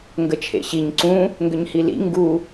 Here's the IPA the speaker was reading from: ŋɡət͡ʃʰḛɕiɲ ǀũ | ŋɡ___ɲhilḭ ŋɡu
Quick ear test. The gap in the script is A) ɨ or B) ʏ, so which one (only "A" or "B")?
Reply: B